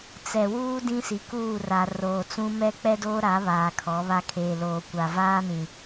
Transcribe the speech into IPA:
t͡s ɛ˨ w uː˦ d ĩ˦ s i˨ k uː˦˨ r a˨ r oː˨ t͡s ũ˦ m ɛ˦ k͡p ɛ˦ d oː˦ ɾ a˨˦ β aː˨ kʰ ɔ˨˦ β a˦ kʰ eː˨ l oː˨ kʷ a˨ v aː˦ n ĩ˨

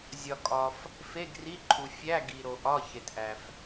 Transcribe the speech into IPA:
zʲ ɒ˩ kʼ ɒ˩ f | f e˧˥˧ ɡ r i˧˥˧ ǃʰ u˩ fʲ æ˧˥˧ ɡ i˩ ɾ o˩ ʔ ɒ˧˥˧ ç e˩ t ʔ æ˩ f

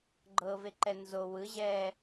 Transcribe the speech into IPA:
ɡ͡ǃ ɤ v e ǃ ɛ n z o w ɯ ʑ ɛː

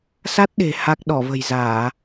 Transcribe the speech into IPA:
s a˦˥ t̚ ɗ e̤˨˩ h a˦˥ k̚ ɗ ɔ˧˩ v ə̤˨˩ j z aː˧˩˨

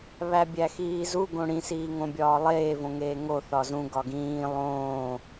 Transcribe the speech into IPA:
β æ bʲ æ x iː z u ɡ õ ɽ ĩ s iː ŋ õ bʲ ɒː lˠ eː v õ ŋ eː ŋ o θ ɒ z ũ ɡ ɒ ɡ ĩː lˠ õː

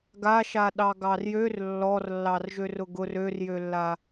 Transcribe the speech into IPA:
ɡ a ʃ a ɗ ɑ ɡ ɑ r j ø r lː ɔ r lː ɑ r ʒ ø r ʊ ɡ ʊ r ø r j ø lː a

